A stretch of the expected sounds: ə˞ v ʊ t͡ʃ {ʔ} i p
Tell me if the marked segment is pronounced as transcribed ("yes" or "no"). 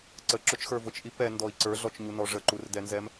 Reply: yes